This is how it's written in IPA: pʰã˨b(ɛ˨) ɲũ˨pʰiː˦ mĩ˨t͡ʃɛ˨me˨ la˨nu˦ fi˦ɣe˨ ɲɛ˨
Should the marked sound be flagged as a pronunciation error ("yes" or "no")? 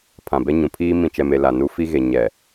yes